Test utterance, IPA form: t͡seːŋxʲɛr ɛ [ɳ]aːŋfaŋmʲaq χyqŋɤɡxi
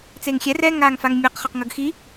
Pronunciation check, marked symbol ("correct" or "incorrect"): incorrect